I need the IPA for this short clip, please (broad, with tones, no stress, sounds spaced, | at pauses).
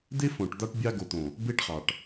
d̪ e˦ f õ˨ ʈ d̪ ɑ˦ ʈ bʲ ɑ˦ ɡ o˨ t̪ õ˨ | b e˦ ʈ χ ɑ˨ ʈ